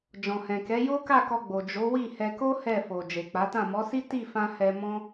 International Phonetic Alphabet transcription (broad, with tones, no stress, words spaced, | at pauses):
d͡ʒɔ̃˨hɛ̃˨kɛ˨˦ jo˦ka˦˨kɔ˧ ɡ͡bo˨d͡ʒo˨˦wi˦˨ hɛ˧ko˦ hɛ˦˨ fo˨ d͡ʒe˨k͡pa˨˦tã˦˨ mɔ˨˦si˦ ti˦˨fã˧ hɛ˧mɔ̃˦